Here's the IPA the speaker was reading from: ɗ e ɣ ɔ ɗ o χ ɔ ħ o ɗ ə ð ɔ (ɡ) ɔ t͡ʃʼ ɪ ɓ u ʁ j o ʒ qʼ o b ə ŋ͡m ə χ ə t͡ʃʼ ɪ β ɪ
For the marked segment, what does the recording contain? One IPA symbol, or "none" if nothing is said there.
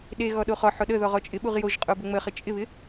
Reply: ʁ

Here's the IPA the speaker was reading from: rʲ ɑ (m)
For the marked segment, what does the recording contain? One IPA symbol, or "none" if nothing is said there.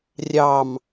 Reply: m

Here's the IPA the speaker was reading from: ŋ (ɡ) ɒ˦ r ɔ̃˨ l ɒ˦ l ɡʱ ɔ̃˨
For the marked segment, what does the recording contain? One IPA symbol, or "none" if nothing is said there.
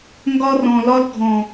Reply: ɡ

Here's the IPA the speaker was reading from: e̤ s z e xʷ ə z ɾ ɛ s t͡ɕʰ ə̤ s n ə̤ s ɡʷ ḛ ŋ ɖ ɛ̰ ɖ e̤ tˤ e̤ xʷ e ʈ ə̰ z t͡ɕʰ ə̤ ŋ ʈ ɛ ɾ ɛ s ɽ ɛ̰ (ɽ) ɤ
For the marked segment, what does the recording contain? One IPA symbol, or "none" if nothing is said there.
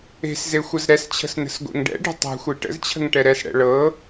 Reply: ɭ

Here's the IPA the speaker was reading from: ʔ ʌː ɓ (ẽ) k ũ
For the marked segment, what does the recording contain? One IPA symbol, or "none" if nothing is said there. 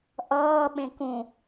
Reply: ẽ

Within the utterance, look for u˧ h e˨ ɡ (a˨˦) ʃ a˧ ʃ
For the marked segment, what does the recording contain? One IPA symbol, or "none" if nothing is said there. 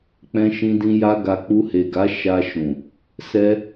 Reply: a˨˦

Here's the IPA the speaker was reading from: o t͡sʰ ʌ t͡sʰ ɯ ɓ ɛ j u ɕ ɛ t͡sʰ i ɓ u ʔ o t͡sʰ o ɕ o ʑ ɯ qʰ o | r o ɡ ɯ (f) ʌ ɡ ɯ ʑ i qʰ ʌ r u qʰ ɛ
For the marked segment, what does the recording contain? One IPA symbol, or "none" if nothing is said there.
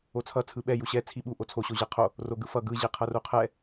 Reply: f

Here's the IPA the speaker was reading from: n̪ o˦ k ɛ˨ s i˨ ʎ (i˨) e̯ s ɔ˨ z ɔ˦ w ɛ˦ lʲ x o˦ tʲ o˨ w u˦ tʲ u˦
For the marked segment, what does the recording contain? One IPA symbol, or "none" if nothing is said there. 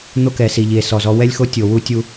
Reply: i˨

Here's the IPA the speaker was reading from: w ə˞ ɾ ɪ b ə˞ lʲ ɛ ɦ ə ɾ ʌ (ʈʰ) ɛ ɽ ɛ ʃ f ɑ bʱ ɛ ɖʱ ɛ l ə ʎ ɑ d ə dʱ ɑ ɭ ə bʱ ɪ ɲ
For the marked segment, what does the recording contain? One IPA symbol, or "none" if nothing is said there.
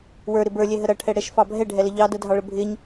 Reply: ʈʰ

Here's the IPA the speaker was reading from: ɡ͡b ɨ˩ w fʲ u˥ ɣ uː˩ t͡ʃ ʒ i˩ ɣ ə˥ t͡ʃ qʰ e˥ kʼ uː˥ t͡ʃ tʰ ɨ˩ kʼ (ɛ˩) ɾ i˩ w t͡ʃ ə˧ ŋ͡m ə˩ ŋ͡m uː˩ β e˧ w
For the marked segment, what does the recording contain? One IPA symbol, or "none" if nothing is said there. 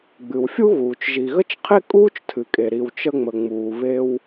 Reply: e˩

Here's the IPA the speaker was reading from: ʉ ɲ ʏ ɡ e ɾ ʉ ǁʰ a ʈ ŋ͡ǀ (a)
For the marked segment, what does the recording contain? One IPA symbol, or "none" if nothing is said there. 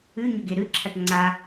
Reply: a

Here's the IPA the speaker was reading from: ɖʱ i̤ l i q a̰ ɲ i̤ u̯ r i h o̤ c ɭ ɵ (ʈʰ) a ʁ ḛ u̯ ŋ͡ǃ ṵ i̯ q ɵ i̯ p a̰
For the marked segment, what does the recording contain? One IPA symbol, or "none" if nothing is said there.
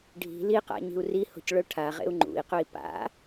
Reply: ʈʰ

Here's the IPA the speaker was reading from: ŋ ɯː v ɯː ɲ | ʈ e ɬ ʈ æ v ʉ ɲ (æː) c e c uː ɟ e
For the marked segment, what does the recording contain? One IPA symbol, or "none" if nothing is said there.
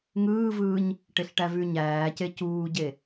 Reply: æː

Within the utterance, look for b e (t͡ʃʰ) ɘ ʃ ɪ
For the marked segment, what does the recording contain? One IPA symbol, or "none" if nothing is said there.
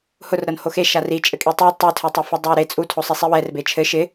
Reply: t͡ʃʰ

